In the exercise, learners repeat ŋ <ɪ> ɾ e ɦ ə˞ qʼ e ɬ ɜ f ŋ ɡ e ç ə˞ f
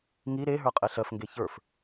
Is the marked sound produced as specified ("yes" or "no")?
no